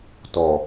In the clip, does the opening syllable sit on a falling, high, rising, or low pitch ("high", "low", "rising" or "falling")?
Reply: low